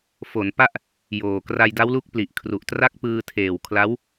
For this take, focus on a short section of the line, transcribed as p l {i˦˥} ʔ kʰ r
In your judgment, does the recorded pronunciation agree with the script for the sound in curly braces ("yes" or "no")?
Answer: no